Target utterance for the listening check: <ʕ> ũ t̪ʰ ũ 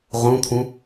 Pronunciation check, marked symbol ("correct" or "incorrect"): incorrect